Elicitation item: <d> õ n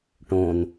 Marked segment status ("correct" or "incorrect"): incorrect